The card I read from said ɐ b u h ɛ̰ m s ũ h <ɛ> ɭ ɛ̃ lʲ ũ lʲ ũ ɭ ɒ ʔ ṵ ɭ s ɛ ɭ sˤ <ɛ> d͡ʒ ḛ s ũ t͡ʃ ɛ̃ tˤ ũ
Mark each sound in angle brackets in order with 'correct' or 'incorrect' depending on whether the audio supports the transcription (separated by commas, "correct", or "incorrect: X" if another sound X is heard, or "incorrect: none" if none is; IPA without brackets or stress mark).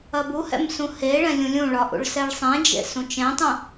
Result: incorrect: e, incorrect: ɛ̃